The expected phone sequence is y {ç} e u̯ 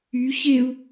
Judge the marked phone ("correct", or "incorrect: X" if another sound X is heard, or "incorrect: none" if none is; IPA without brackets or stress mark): correct